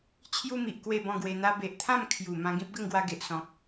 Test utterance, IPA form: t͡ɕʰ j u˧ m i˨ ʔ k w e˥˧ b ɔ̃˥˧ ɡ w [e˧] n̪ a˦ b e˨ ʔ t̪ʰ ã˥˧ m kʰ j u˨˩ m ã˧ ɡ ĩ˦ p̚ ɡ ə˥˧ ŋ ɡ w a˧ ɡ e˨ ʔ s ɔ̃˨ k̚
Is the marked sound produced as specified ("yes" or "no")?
yes